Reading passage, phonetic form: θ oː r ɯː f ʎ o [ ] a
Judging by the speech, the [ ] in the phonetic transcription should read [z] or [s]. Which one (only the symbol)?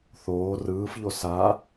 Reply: s